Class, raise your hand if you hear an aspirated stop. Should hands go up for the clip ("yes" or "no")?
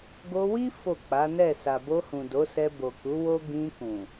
no